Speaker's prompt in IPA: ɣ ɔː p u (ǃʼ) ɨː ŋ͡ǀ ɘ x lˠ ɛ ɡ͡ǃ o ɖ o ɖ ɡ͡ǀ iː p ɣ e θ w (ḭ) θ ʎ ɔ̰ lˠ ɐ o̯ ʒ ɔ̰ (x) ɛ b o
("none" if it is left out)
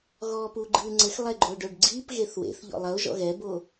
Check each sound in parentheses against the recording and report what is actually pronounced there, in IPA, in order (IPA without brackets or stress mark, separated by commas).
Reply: ɡ͡ǃ, ḛ, ɣ